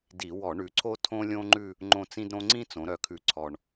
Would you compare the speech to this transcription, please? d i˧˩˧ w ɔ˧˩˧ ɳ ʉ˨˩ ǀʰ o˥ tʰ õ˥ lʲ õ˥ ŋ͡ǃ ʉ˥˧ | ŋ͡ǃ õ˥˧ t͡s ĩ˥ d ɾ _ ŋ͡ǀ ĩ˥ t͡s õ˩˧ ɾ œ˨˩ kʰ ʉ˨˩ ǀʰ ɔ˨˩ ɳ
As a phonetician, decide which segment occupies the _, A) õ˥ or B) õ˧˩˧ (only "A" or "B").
A